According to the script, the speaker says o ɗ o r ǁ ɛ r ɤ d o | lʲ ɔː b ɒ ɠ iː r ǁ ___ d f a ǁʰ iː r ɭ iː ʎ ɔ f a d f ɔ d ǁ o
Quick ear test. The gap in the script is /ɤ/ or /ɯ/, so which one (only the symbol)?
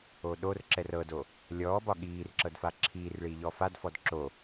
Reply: ɤ